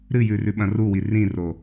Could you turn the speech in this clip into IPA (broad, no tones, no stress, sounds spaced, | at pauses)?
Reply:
ɾ ɨ j ʉ r ʉ ɓ ɐ̃ r u w i r ĩ r o